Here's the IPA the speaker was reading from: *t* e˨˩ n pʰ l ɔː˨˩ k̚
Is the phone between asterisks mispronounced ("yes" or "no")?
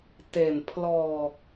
no